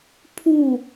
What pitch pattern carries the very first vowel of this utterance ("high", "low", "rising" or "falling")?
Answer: falling